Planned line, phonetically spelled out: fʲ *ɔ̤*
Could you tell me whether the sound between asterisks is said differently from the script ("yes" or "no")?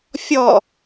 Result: yes